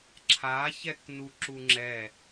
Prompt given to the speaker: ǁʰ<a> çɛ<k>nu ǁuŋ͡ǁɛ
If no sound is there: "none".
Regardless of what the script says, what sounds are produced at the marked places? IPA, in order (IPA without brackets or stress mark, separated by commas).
a, k